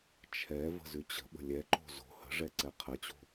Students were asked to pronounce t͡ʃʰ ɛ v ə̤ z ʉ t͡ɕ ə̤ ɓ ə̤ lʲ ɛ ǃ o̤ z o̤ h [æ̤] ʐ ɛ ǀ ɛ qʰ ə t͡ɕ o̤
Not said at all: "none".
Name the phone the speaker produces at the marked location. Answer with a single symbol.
ə̤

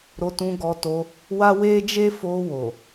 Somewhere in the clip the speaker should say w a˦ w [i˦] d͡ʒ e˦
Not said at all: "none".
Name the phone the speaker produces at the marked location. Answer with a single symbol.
e˦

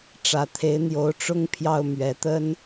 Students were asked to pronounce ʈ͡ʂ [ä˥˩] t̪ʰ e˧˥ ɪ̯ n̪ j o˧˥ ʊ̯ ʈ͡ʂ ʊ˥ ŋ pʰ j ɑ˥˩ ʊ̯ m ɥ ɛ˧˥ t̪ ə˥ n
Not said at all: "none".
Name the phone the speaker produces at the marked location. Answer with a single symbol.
ä˨˩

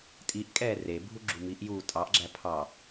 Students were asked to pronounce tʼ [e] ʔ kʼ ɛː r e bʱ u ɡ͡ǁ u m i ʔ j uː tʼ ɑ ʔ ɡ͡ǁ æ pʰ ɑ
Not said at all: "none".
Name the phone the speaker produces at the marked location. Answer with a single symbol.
i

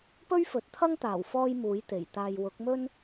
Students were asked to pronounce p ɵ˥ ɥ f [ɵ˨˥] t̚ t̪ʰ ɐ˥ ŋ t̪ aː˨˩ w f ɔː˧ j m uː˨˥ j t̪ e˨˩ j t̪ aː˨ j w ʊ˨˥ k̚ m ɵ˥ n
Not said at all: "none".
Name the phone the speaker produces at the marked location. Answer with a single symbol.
ɵ˨˥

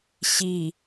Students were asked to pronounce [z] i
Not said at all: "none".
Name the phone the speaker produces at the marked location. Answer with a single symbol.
ɕ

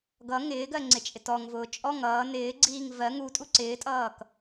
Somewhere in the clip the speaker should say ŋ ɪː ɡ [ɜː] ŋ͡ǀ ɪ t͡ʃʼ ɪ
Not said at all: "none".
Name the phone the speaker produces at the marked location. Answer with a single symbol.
ɜ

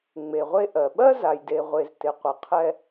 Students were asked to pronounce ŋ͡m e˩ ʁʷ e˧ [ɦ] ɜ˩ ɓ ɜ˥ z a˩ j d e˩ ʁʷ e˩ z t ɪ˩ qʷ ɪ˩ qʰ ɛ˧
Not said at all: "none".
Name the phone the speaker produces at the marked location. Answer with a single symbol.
ʔ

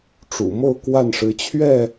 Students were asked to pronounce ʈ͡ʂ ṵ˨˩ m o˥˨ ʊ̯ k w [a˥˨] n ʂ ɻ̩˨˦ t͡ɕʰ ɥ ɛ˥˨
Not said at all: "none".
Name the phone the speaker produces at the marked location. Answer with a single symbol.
a˥˨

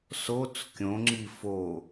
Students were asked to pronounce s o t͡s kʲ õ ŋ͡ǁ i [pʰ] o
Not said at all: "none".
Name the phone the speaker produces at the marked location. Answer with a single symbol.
f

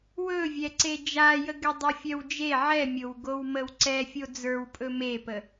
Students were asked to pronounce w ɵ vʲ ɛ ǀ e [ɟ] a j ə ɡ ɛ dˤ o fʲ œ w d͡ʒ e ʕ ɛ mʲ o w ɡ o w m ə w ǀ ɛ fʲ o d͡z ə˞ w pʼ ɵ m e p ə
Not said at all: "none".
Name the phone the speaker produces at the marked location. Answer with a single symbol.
d͡ʒ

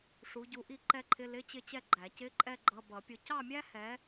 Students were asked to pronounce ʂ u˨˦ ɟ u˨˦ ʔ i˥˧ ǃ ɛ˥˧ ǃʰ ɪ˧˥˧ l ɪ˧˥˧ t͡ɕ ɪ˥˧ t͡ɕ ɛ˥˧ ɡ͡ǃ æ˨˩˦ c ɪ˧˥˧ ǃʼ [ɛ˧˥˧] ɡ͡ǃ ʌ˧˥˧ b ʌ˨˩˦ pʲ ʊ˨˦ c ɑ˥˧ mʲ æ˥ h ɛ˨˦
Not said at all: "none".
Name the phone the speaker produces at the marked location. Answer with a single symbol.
ɛ˥˧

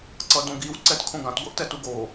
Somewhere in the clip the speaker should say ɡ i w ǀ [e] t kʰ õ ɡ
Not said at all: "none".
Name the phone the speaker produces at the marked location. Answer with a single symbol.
ɛ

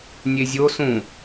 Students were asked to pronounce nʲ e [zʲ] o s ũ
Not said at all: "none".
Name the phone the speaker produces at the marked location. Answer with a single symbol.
zʲ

